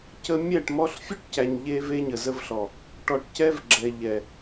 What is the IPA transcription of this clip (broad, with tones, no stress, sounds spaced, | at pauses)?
c ə˧ mʲ æ˦˨ ʈ m ɔ˧ ɬ fʲ u˦ ʈ c æ˨ ɲ ʎ e˦ v e˦ ɲ ə˨ z ə˧ v ɬ ɔ˨ | ʈ ɔ˨ ʈ c ɛ˦ v ɡ͡ǁ ɛ˨ ʎ ɛ˨